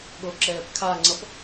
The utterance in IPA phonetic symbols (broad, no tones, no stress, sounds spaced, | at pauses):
ɠ o ǁ ɛː p kʰ a ŋ͡ǀ ʌ p